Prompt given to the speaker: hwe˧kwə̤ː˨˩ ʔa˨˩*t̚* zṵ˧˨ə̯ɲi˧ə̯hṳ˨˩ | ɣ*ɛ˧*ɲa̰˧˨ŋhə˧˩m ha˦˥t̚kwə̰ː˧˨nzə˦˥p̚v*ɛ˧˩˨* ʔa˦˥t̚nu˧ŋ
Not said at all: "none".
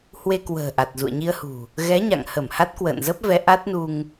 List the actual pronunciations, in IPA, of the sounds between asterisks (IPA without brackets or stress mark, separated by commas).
t̚, ɛ˨˦, ɛ˨˦